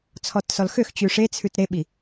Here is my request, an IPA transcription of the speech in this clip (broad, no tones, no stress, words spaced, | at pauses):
t͡sʰɔtsɔlxøxt͡ɕʉ ʂet͡sʰʉt ɾeɓi